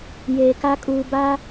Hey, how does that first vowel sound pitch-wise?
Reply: low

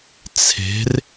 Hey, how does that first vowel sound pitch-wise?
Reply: rising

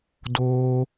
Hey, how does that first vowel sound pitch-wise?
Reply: high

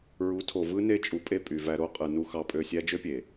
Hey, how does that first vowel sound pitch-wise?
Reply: rising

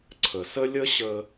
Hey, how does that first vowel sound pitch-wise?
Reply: low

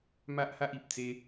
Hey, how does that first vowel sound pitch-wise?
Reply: high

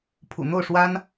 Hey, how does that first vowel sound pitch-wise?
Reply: low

